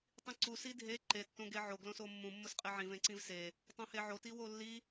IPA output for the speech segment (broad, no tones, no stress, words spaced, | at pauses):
tˤĩǀu sidʱe ǃe tːõɡeʕo ɡlõsomːũ mːʊsqʼeʕĩ vẽǀĩvse | tˤõheʕo tiwolːi